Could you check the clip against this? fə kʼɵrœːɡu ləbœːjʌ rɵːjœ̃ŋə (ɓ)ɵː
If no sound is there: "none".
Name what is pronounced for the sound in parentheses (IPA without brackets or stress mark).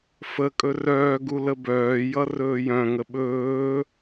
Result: ɓ